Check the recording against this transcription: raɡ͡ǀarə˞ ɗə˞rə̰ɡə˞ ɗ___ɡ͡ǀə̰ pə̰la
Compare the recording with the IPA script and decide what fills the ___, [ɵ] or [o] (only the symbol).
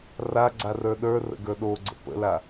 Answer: o